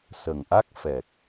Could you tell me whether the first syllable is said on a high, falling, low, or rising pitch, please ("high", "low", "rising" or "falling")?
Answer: low